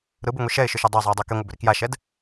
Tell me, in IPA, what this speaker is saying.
ɾ ɯ b ɯ ŋʷ i ʃ ɛ ɪ̯ ʃ ʏ ʃ o dˤ o zˤ o ə̯ dˤ o k e ŋʷ ɤ b ʏ ɾ i k j a ʃ ɛ d

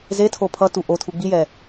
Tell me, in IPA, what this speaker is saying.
z e tʰ o pʰ ʌ t u ʔ o tʰ u ɡ͡b i j ɛ

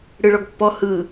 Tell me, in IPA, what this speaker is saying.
ɽ ɯ ɭ ɔ ɡ pː ɔ h ɯ

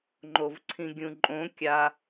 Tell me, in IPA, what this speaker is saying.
ŋ͡ǃ o v ǀʰ ĩ ɡʲ ũ ǃʼ õ kʲ a

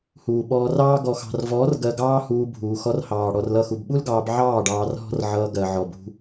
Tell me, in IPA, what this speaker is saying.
h uː˨ ɓ ɔː˧ r ɑː˦ ɡ ɔ˨ x ɑ̤˨ r v ɔː˨˦ r ɡ ɜ˧ ɡ ɑː˦ h uː˧ bʱ uː˨ x ɔ˧ r h ɑː˨ ɽ ɔ˧ r l ʌ˦˨ x u˧ b ɓ u˦ l ɡ ɑː˧ b ʕ ɑː˦˨ ɖ ɑː˧ r ɦ ɔ̤˦ r ʕ ʌː˧ ɡ ɜ˨ ʕ ɔ˨ b ṳ˧

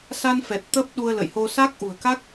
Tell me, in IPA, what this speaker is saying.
s a˧ n f ɛ˨˩ t̚ t̪ əː˦˥ p̚ ɗ u˧ ə̯ l ə̰˧˨ j h o˧ s a˦˥ k̚ ʔ ṳ˨˩ ə̯ k a˦˥ k̚

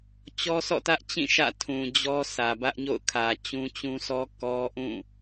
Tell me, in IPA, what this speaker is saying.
t͡ɕ ɔ˦ s ɔ̰˦˨ t ä˦ ʔ t͡ɕ ĩ˦˨ ʃ ä̰˦˨ tʰ ũ˨ d͡ʑ ɔ˦ s ä˨ b ä˦ ʔ ɲ o̰˦˨ ʊ̯ kʰ ä˨ t͡ɕ ũ˦ t͡ɕ ũ˦ s ɔ˦ k ɔ˦ ʔ ũ˦˨

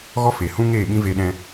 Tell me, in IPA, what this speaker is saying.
ɣ ɔ˦ f e˨ h ũ˦ ŋ eː˦˨ ɓ ĩ˦ v e˦ ɗ ɛ̃˦

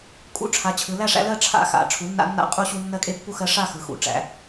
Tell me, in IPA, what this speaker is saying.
kʼ ṵ˦ ʈ͡ʂʰ a˩˥ t͡ɕʰ ɯ˩˧ l æ˥˨ ʂ æ̰˦ l ɜ˥˨ ʈ͡ʂʰ a̰˦ x a̰˩˧ ʈ͡ʂʰ u˩˥ nː a̰˦ nː a̰˥˨ qʼ u˦ ɕ u˦ nː ɜ˦ kʼ e˦ pː u˥˨ x ɜ˦ ʂ a˥˨ x ɯ˩˧ x ṵ˩˧ ʈ͡ʂ æ̰˩˧

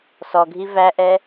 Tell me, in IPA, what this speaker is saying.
s ɔ ɡʱ i v æ ʔ ɛ

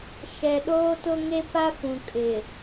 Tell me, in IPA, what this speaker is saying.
ʃ ɛ˨ ɗ oː˦ t ʊ˦ ŋ e˦ p a˦ f ũ˨ kʼ ɪ˨

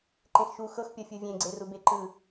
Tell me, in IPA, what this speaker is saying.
ǃ ẽ x ʃ u x ɤ x pʲ ɔ fʲ o vʲ ẽ ɡ͡ǀ e r u b e ǃ ɯ

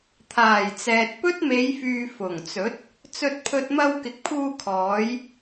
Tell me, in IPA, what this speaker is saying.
t̪ʰ aː˨˩ j t͡s ɛː˨ t̚ p ɵ˥ t̚ m e˨˧ j f yː˨ f ʊ˨˩ ŋ t͡s ɵ˨˥ t̚ | t͡s ɵ˧ t̚ pʰ ɵ˧ t̚ m ɐ˧ w k ɪ˨˥ k̚ pʰ uː˧ kʰ ɔː˨˧ j

